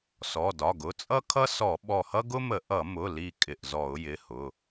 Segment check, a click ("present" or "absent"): absent